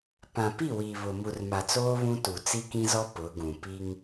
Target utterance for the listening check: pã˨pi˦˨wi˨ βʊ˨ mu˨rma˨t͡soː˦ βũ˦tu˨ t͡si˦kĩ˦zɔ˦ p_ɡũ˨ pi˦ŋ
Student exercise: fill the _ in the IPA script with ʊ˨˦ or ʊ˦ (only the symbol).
ʊ˨˦